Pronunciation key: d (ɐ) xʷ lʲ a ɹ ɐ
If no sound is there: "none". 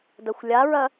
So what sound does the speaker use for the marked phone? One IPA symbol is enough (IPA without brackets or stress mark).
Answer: ɐ